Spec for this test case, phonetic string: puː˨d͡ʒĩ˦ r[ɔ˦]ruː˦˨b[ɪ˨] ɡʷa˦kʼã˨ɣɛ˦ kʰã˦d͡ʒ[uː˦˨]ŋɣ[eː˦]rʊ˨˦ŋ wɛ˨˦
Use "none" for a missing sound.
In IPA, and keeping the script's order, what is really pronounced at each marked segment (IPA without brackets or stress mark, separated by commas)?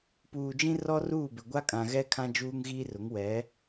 ɔ˦, ɪ˨, uː˦, iː˦